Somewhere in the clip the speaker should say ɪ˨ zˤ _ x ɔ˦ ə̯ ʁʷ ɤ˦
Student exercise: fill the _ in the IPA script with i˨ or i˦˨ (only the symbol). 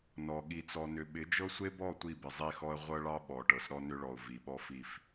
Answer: i˦˨